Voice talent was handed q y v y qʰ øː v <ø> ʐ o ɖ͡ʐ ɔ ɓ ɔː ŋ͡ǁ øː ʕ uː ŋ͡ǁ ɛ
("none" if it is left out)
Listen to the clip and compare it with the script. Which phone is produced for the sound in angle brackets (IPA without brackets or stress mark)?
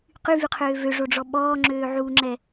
ø